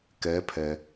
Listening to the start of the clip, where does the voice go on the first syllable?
rising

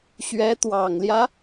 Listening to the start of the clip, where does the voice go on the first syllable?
rising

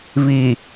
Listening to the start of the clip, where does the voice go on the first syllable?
low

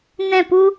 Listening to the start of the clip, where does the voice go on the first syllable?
falling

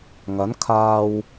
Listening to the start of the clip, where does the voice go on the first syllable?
rising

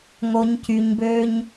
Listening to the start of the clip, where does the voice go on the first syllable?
low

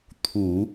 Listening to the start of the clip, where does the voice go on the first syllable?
low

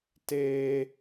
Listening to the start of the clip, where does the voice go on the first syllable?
high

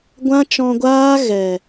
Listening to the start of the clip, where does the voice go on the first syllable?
high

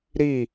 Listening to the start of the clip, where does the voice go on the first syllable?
falling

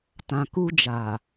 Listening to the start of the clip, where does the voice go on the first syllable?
low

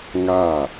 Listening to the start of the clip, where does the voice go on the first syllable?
falling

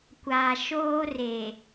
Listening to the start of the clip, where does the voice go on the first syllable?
low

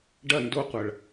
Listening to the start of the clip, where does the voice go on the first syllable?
falling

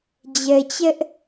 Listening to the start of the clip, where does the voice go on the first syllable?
low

